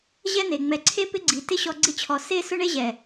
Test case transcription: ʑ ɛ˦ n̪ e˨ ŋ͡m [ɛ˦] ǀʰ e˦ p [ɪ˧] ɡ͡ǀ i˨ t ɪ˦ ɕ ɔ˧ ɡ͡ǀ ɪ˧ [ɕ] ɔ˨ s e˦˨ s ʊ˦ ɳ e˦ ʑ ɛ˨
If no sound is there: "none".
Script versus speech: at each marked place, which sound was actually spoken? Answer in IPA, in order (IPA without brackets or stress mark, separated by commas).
ɛ˨, ɪ˦, t͡ɕʰ